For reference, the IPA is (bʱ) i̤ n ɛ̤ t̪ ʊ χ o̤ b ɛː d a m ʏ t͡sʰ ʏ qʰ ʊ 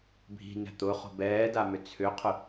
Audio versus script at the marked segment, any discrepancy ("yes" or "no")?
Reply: no